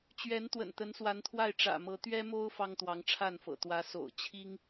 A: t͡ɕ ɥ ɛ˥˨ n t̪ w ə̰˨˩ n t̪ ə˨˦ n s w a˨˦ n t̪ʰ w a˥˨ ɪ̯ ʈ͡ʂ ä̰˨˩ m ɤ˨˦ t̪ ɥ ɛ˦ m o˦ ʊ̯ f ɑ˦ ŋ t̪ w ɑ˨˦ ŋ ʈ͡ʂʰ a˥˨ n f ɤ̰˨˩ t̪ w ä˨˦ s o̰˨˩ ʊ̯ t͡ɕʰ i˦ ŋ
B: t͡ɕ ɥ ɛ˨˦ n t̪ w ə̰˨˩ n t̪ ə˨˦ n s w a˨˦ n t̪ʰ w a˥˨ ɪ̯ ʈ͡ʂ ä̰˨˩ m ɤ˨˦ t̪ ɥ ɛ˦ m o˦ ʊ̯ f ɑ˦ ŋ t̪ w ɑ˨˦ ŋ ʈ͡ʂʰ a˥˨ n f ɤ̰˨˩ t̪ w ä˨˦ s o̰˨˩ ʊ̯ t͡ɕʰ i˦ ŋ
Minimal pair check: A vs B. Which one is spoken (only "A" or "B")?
B